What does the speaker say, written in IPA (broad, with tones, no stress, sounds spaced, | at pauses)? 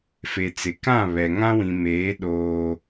f e˨ t͡s ɪ˨ k ã˦˨ β ɛ˨ ŋ ã˦ w ĩ˨ m eː˨˦ ɗ oː˦